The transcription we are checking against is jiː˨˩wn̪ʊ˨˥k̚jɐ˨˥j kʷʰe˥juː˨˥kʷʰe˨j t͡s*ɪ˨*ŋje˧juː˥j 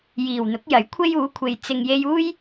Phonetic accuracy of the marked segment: correct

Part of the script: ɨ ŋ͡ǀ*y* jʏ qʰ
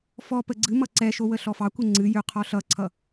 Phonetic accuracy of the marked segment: incorrect: ɨ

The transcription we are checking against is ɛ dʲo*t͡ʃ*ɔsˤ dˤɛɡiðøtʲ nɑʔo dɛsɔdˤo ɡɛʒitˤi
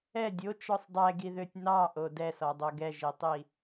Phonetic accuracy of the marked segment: correct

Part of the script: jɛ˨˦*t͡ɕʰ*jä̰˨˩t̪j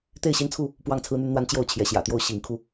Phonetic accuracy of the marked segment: incorrect: ɕ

